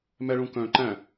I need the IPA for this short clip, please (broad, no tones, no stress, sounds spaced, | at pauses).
m ɛ ɭ ũ k œ̃ ǃ æ̃